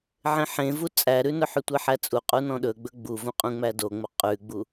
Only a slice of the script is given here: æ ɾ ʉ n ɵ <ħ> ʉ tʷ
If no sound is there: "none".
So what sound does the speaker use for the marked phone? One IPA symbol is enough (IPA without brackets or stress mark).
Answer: ħ